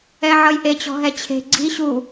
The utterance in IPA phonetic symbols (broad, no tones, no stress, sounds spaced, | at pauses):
ɛ ʕ ʌ j ʔ e t͡ɕ ɔ̤ ɦ ɛ t͡ɕʰ e̤ ɡ͡ǀ i ɕ u